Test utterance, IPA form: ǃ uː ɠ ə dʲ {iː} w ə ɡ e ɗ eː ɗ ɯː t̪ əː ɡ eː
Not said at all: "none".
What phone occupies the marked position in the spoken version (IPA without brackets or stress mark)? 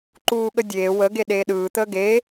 eː